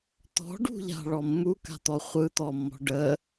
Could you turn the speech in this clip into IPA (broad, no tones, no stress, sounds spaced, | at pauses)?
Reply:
t̪ ɔ̤ ɖ ṳ ʎ a̤ ɭ ɔ mː u k a̤ t̪ ɔ χʷ ɯ t̪ ɔ mː ɔ̤ ɖ ə